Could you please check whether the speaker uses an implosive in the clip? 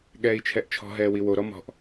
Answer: yes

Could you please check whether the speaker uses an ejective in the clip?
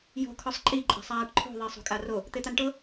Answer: yes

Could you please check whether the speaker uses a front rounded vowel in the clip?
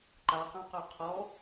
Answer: yes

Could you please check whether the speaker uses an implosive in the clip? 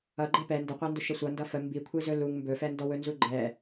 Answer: no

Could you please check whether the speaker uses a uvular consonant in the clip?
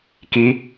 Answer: no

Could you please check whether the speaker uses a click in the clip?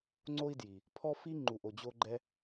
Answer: yes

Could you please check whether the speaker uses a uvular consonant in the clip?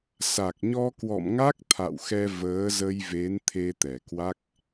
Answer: no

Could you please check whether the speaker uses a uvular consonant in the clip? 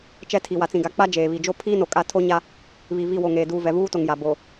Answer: no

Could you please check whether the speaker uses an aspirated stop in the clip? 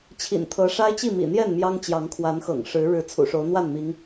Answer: yes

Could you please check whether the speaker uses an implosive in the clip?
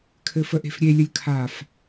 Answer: no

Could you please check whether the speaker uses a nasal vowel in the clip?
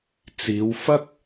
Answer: no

